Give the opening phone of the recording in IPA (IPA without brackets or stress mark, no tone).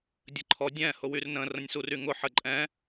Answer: dʲ